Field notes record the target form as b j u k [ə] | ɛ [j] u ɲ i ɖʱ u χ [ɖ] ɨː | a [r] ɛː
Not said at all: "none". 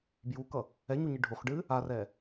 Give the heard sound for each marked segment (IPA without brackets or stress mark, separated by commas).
ʌ, ɲ, ɖ, r